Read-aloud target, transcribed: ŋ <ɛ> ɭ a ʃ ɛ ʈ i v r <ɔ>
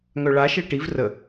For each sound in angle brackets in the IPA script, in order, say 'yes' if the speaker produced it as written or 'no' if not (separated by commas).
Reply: no, no